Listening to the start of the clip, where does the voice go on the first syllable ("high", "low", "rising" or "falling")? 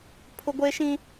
high